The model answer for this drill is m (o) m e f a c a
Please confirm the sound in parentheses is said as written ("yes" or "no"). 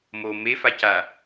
yes